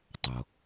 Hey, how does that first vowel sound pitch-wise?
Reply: low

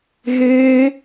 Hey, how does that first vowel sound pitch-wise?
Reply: high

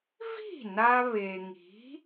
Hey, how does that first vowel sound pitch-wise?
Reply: falling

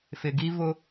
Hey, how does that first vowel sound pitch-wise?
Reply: low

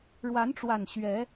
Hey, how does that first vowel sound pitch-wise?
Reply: rising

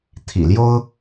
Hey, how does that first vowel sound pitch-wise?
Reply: low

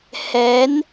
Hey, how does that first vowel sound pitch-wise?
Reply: rising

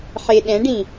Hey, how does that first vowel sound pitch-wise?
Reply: low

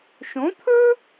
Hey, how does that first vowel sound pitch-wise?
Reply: rising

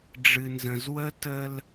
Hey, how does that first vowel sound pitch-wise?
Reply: low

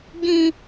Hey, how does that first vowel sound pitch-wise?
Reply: high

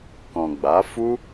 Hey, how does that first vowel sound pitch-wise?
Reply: low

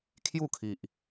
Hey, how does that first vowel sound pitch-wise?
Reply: falling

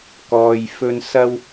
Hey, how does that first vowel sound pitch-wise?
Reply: low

